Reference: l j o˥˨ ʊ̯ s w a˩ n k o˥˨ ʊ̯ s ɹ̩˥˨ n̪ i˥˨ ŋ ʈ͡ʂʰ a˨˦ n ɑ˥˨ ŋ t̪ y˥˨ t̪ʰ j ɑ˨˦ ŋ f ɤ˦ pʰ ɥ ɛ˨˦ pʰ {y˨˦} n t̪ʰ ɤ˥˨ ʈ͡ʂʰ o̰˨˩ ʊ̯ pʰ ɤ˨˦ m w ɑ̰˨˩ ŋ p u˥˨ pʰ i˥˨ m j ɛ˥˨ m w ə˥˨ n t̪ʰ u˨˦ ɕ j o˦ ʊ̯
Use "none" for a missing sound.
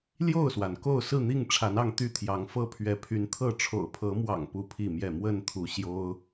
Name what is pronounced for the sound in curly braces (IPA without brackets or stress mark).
y˨˦